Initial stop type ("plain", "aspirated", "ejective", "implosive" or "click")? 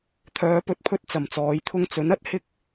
aspirated